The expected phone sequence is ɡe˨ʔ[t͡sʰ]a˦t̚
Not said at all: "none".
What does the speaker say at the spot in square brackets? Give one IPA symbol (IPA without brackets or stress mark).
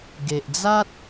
d͡z